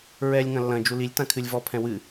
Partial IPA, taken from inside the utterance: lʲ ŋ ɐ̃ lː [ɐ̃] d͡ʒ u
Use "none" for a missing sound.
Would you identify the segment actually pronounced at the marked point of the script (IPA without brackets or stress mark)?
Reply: ɐ̃